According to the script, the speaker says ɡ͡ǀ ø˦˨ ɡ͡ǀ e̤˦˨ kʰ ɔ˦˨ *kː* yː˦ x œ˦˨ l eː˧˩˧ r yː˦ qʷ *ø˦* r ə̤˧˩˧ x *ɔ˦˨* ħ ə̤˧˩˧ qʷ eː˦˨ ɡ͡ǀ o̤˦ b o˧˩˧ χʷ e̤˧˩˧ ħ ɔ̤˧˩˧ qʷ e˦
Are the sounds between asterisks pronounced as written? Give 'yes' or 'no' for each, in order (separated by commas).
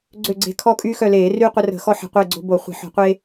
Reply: no, no, no